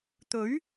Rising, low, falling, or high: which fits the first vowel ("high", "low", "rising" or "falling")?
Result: rising